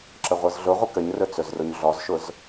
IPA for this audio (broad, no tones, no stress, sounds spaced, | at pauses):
ǁ ə ʁʷ ɤ z ɮ ʊ ʁʷ ə k ə ɲ r ɵ t͡s ɵ z r ʊ ɲ ɮ ɔ z ʃ ʊ z